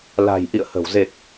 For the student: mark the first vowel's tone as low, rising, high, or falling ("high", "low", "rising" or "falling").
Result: low